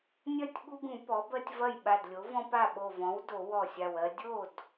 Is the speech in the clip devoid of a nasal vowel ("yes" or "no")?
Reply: no